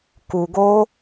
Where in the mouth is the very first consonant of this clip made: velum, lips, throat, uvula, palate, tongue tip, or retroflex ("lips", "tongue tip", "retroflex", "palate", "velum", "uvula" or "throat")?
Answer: velum